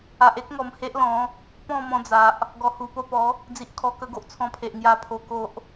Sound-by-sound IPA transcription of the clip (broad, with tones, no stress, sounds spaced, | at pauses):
a˨ ʔ e˦ k̚ ŋ ɔ˨˩ m h e˦ ʔ l ɔ̃˨˦ | p ɔ̃˥˧ m ɔ̃˧ d͡z a˨ ʔ | ɡ ɔ˨˩ h u˨˩ p o˥˧ p ɔ˨˦ | d͡z i˨ ʔ kʰ ɔ˨˩ k ə˧ ɡ o˨ ʔ t͡sʰ ɔ̃˧ pʰ e˨ ʔ ŋ j a˧ pʰ o˧ k o˦ ʔ